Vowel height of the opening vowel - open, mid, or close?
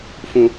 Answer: close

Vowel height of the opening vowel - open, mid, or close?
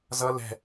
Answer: mid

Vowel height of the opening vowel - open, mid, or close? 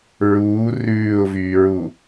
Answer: close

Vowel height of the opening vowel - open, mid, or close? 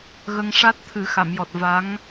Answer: mid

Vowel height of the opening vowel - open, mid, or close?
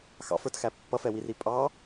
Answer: open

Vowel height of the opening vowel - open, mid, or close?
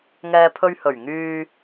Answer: mid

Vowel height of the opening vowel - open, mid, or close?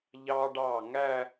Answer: open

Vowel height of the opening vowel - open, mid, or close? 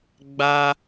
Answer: open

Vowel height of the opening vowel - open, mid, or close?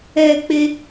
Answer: mid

